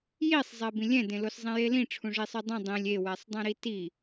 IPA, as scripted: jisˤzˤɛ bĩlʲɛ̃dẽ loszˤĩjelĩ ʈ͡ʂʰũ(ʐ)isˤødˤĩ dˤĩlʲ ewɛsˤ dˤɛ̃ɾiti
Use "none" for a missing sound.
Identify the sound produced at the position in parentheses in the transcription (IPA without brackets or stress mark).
ʐ